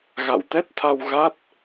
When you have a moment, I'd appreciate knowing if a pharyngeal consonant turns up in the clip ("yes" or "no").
no